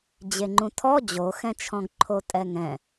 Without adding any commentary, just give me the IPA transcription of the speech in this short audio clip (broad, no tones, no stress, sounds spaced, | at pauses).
d͡ʑ e ŋ͡ǃ ũ tʰ ɔ d͡ʑ o x ɛ̃ t͡ʃʰ ɔ̃ ɡ ǃʰ o tʼ ɛ ŋ ɛ̃